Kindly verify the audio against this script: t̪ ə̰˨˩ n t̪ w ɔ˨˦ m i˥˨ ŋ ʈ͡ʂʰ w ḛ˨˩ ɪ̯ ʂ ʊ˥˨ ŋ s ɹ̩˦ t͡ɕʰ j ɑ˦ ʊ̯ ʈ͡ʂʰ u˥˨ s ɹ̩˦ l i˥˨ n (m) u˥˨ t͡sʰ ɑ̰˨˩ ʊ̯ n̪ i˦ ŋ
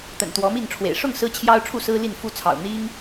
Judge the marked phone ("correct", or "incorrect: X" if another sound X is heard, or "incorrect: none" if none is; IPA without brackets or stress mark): incorrect: f